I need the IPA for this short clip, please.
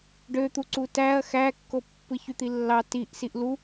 ɖ ø t̪ u ǀ u t æ ɐ̯ x æ kː o pː ɯ ç y t̪ i lː ɑ t i ʔ s i ʔ l u

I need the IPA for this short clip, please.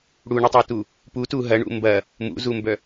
ɽ u ɳ i tˤ o t u | p u t u ɦ ɐ ɳ ṵ m b ɐ | m ṵ z u m b œ

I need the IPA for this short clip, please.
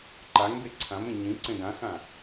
ǃ a ŋ b e ǀʰ ã m ẽ ɲ ĩ ǀ ẽ ɡ ã x ã

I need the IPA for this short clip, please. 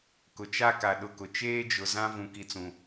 k ʊ˨ t͡ʃ a˦ k a˨ ɗ ʊ˨ k ʊ˨ t͡ʃ eː˦ d͡ʒ ʊ˨ z ã˦ v ũ˨ k i˨ t͡s ũ˨

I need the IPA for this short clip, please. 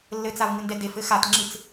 lː ɘ t͡s a v ŋ ɨ n d ɛ d e f ɘ x a t ŋ͡ǁ ɨ t͡s

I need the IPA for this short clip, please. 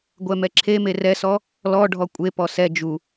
ɡʷ ɛ m ɛ ǁʰ e m e r ɛ s ɔ | l ɔ ɖʱ ɔ kʷʼ e p ɔ s ɛ d͡ʒ u

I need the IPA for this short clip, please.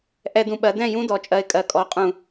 ʔ ɛ˧˩˧ d ũ˨˩ ɓ ɜ˩˧ d ɛ̃˥˩ j ũ˦ d ɔ˩˧ t͡ʃʼ ɜ˨˩ ɪ̯ kʼ ɜ˩˧ kʼ ɔ˩˥ qʼ ũ˧˩˧

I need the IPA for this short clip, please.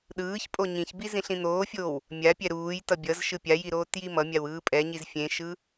ɗ ɯː ç pʼ o ɲ ĩ ç b i z ĩ ɬ ĩ n̪ oː fʲ oː w | mʲ a pʲ ɛ ɾ uː j t ʌ bʲ ʌ z ʃ ɯ pʲ a j i ɾ oː t j i m ʌ mʲ a w ɯː pʼ ɛ ɲ i z fʲ ẽ ʃ ɯ

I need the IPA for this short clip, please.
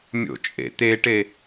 mʲ o̰ t͡ʃʼ ḛ t̪ e ʈ e

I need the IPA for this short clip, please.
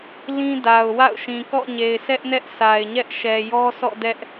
l ĩ˦ d a˨ ʊ̯ w a̰˦˨ ʊ̯ ʃ ĩ˨ k ɔ̰˦˨ ɲ e˨ ɪ̯ s ɛ˦ ʔ n ɛ˦ ʔ s a˨ ɪ̯ ɲ ɛ˦ ʔ ʃ ɛ˨ j ɔ˦ sʰ ɔ̰˦˨ d ɛ˦ ʔ

